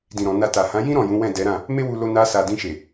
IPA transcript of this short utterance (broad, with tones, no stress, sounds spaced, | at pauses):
d ĩ˨ ɾ ɔ̃˨ n a˧ t a˨ h ã˨˦ j ĩ˦ ɾ ɔ̃˦˨ j ũ˨˦ w ɛ̃˦˨ d ɛ˨˦ ɾ ã˦˨ | m e˦ w u˧ l o˧ n a˧ s a˨ d ĩ˧ ʃ e˨